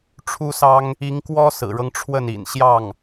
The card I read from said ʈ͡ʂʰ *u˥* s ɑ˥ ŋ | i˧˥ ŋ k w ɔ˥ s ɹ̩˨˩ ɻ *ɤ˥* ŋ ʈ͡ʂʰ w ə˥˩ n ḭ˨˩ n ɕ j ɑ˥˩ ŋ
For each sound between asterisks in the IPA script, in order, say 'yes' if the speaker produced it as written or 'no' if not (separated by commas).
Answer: yes, no